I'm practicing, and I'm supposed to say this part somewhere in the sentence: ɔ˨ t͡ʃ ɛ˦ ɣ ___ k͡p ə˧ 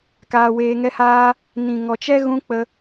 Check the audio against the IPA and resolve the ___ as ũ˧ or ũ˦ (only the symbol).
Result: ũ˦